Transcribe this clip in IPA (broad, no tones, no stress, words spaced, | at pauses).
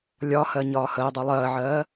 lʲɒhɜ ɲɒːhəːdˤʉ lˠɜːʕɜː